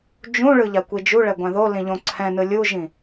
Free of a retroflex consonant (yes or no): no